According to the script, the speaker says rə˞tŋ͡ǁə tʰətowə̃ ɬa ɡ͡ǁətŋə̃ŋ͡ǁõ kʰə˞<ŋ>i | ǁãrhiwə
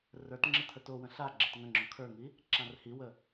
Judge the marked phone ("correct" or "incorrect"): correct